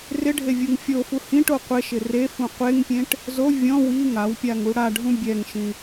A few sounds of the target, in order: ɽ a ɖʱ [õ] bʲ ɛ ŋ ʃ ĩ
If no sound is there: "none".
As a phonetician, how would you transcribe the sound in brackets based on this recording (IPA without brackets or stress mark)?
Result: ũ